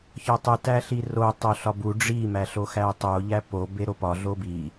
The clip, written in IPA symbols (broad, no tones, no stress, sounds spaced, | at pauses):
ç ɒ tˤ u t æ ɬ i r o tˤ o ɬ ɒ b u ɖ͡ʐ i m æ ɬ o x æ tˤ o ʎ æ p o b e ɾ o p ɒ ɮ o b i